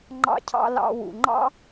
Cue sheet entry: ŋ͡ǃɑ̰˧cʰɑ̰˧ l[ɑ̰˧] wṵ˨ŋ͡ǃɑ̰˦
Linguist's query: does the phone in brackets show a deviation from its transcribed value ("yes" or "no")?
yes